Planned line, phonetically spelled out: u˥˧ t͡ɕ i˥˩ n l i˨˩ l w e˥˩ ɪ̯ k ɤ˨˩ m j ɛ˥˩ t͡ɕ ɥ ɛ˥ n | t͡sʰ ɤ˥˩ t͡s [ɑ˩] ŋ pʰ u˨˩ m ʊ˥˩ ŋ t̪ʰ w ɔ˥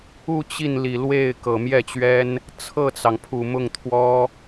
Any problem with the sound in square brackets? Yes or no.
no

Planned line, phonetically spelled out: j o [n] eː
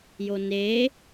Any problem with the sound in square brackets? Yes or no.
no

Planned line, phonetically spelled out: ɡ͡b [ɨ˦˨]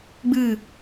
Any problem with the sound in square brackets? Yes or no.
no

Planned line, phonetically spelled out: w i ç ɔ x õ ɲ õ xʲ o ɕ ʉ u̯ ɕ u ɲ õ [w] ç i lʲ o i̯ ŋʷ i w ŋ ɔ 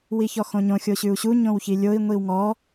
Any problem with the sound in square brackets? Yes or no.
no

